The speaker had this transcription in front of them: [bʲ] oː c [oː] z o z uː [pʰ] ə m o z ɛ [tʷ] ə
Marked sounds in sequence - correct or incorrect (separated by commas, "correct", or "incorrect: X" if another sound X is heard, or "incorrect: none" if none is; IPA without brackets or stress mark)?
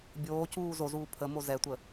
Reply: correct, incorrect: uː, correct, correct